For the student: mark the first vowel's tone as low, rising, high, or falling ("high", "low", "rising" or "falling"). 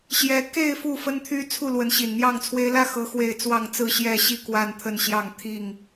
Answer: rising